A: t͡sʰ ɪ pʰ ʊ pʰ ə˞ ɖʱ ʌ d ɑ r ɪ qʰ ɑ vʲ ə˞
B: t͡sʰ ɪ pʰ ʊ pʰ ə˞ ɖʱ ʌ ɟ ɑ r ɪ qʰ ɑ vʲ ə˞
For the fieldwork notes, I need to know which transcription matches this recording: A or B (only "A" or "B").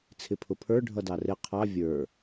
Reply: A